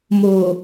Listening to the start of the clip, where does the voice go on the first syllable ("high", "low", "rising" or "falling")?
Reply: low